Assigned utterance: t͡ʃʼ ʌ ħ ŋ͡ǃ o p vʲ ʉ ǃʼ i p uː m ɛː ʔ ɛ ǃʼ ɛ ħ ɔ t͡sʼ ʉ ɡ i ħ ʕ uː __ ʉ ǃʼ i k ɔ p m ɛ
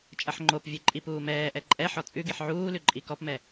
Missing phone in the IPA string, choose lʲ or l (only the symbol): l